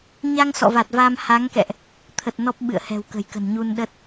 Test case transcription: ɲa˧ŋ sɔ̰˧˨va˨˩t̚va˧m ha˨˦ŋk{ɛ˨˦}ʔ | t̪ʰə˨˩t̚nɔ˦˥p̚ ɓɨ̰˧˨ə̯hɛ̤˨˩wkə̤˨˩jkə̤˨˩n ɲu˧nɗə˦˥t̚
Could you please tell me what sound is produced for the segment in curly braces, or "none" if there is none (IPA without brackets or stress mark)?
ɛ̰˧˨